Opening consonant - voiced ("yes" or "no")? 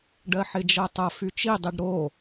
yes